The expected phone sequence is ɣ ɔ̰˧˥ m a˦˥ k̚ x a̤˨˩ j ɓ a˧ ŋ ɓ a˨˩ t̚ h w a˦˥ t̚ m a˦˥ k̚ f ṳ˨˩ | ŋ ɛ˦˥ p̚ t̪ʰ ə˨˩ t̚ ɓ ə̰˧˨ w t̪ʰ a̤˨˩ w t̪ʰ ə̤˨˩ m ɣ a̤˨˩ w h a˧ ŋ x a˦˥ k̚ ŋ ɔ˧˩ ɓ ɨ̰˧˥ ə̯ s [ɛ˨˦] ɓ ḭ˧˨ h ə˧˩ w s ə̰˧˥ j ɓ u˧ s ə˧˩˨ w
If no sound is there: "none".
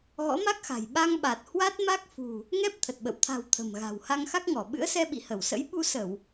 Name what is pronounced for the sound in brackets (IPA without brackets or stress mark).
ɛ˧